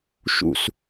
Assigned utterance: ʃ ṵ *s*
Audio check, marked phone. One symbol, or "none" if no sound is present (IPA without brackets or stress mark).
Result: s